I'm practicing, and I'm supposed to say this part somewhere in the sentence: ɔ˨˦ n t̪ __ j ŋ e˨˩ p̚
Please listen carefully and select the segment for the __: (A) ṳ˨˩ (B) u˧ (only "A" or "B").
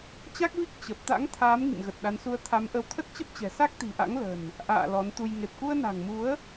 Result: B